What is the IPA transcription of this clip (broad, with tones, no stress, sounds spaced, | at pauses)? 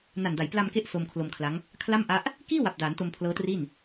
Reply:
n a˨˩ n d a˩˦ j p l a˧ m k e˦˥ ʔ s o˧ m kʰ l o˧ m kʰ l a˦˥ ŋ | kʰ l a˥˩ m ʔ a˦˥ ʔ | k iː˥˩ w a˨˩ p̚ d aː˩˦ n t o˧ m pʰ l ɤː˦˥ t r i˥˩ n